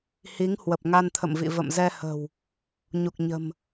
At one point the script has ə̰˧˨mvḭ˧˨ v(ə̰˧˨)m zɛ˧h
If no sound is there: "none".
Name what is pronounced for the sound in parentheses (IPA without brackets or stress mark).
ə̰˧˨